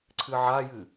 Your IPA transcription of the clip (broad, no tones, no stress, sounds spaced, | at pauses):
ǀʰ ɨ ʕ a j ɨ